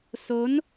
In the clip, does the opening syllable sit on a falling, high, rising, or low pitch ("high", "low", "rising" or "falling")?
rising